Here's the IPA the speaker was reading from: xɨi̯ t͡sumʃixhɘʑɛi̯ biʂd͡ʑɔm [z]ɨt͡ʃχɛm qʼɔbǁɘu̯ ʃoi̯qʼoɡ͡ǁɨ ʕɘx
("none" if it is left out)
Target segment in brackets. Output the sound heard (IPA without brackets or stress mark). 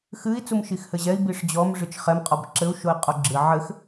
ʐ